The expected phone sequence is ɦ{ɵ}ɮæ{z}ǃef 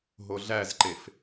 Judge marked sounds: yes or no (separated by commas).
no, yes